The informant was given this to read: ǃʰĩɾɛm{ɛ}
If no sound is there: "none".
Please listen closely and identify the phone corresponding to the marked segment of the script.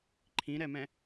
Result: ɛ̃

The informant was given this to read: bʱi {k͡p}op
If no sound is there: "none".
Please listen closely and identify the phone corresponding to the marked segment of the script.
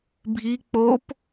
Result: k͡p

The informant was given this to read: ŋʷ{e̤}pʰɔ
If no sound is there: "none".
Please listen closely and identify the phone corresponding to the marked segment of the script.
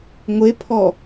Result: e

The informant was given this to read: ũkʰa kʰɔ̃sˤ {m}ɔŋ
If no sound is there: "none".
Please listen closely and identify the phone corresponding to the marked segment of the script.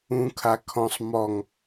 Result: m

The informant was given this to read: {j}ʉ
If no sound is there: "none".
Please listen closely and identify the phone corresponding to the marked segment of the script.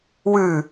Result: w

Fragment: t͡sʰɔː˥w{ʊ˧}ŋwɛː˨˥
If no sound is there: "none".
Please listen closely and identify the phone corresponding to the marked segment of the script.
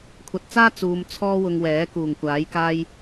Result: ʊ˧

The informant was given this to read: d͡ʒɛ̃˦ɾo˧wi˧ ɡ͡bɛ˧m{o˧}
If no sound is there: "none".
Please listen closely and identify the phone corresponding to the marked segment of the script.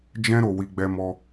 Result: ɔ˧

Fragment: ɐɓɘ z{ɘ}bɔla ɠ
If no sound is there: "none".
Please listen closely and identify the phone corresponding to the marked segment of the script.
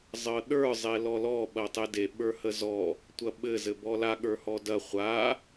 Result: ɘ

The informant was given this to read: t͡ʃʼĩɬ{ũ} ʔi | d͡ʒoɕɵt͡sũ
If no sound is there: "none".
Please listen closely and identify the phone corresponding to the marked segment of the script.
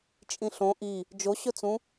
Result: õ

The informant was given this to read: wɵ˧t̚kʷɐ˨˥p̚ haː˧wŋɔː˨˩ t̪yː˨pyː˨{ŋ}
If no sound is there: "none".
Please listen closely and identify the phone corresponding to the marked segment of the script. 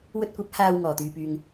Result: ŋ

